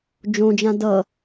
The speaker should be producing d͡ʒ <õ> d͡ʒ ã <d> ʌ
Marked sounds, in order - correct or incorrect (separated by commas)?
correct, correct